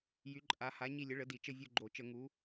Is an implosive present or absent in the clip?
absent